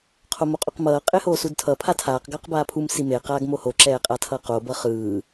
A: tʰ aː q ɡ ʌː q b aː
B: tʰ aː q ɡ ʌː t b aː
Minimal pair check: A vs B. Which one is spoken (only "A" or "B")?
A